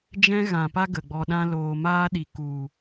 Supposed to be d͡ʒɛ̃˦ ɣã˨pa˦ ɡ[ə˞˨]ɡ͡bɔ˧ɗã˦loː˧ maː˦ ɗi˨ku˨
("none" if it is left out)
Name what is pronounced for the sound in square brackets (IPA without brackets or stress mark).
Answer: ə˨